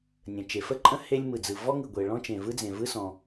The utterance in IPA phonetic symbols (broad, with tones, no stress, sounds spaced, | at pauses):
nʲ ə̃˩ t͡ʃ e˩ f ə˥ ǃʼ ə̃˥ h e˥ lʲ m ɯ˩ d͡z ɯ˩ v ɔ˥ ŋ ɯ˩ ɡʷ e˩ ɭ ɔ̃˥ t͡ʃ ẽ˩ v ɯ˥ d͡z ẽ˩ v ɯ˥ s ɔ̃˩